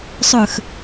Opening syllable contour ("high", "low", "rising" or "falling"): low